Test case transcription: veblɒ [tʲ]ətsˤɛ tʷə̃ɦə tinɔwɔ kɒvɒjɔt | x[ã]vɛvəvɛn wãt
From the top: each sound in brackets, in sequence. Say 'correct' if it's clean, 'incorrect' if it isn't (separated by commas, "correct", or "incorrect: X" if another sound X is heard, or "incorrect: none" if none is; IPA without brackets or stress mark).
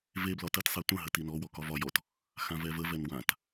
incorrect: t, correct